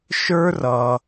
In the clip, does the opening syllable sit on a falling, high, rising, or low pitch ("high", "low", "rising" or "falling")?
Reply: high